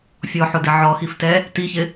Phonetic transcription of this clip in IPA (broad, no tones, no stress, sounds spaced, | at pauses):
fʲ ɔ ħ ʊ d ɪ ʕ ɔ x i f t ɛ | t i ç ɪ